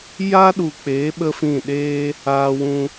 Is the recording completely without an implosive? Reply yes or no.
no